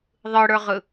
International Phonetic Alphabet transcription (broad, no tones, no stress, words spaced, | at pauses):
ðˤɯɽə˞ʁɯ